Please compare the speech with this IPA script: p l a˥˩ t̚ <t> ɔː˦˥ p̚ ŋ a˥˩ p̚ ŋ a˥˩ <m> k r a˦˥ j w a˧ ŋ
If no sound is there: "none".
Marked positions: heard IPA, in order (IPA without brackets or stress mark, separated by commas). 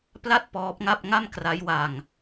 p, m